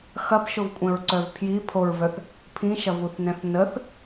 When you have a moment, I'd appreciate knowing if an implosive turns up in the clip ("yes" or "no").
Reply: no